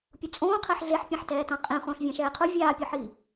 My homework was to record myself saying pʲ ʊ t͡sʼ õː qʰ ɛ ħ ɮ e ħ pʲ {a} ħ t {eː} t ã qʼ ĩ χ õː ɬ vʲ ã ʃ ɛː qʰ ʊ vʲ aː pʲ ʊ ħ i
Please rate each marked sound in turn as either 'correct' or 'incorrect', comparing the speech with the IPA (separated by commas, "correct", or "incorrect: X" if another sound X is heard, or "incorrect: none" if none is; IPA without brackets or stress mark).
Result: incorrect: ã, incorrect: ɛː